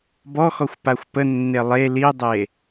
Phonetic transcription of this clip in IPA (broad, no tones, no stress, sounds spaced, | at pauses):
b ɔ x ɔ xʷ p a xʷ p ə nː e lˠ e l i dˤ e